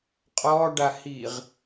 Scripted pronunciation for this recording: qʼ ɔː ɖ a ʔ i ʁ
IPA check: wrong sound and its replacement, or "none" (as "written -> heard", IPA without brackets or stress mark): ʔ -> h